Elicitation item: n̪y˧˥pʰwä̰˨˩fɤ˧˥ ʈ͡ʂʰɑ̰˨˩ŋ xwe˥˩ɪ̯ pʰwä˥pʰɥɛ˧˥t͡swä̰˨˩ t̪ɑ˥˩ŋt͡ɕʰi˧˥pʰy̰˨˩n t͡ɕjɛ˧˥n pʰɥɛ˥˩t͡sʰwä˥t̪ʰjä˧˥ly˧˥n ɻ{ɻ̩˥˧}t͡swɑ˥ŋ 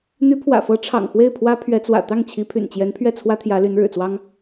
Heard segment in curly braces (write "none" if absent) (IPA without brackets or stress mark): ɻ̩˨˩